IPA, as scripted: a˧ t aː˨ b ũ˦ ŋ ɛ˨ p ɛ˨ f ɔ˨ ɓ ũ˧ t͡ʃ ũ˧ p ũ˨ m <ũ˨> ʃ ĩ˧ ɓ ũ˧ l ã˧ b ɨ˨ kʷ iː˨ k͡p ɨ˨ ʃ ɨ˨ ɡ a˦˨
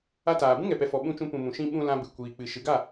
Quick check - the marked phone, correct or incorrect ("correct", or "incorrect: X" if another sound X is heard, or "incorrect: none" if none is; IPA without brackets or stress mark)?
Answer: correct